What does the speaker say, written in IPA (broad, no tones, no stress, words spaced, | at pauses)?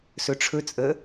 sɵʈ͡ʂʰɵ t͡sʼə